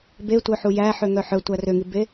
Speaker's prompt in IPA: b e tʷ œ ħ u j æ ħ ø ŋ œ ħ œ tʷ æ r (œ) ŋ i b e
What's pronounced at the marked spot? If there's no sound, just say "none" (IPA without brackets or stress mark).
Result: ø